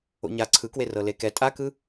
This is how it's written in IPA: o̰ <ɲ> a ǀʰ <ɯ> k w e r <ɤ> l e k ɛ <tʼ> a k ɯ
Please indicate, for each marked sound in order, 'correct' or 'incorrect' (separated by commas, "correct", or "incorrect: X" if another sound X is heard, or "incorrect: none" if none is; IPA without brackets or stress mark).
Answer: correct, correct, correct, correct